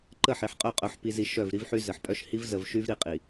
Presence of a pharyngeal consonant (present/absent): present